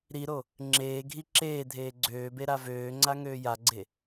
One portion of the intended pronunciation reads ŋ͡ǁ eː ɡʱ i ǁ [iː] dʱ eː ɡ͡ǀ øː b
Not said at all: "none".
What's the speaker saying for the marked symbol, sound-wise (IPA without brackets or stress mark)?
eː